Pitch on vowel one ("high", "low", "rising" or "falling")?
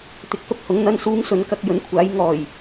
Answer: low